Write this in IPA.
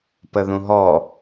p ə ð ũ ɦ ɔ

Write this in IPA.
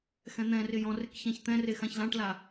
x ɛ̃ n̪ ɛ̃ r ɪ j ɔ̃ r ɪ k ç ã ç t̪ ɛ̃ r e x ã ç l ã ʈ l a

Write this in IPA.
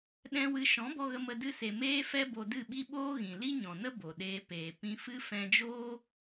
ɗ ɛ̃˦ w ɨ˧ ʃ ɔ̃˨˦ b ɔ˧ ɣ ə˧ m ə˧ d ɨ˧ s e˨ m eː˦ f ɛ˦ b o˧ d ɨ˦˨ ɓ i˦ ɓ oː˦ ɣ ĩ˨ l i˦ ɲ ɔ̃˨ n ə˦ b o˨ ɗ eː˧ p eː˨ p ĩ˧ f ɨ˦ f ɛ̃˧ d͡ʒ oː˦

